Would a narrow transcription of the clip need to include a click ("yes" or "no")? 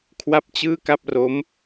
no